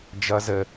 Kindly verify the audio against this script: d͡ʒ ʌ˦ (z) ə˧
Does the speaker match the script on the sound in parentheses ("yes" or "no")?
yes